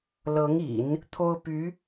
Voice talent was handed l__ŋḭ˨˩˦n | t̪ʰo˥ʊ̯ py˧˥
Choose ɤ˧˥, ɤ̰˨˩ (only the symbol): ɤ˧˥